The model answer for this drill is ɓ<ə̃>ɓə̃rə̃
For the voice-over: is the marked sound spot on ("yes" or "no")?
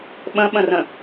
yes